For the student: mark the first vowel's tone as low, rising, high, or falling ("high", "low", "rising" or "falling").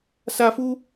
high